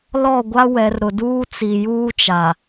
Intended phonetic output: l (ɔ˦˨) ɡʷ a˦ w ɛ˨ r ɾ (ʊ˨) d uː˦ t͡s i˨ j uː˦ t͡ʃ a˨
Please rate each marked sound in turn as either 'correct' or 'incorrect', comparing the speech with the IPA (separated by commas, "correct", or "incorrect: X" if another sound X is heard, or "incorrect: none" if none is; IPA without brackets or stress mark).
correct, correct